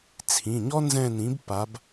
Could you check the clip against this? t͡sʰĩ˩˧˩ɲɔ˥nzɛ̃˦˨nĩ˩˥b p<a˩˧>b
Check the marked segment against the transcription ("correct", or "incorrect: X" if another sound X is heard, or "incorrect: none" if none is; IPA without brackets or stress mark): correct